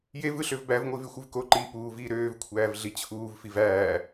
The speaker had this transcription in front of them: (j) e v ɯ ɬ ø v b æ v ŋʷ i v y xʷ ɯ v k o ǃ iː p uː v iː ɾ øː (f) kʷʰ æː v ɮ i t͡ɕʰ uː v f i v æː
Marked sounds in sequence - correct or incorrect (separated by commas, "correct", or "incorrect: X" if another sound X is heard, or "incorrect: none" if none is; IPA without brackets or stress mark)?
correct, incorrect: v